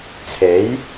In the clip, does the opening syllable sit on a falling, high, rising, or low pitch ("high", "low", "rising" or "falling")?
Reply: rising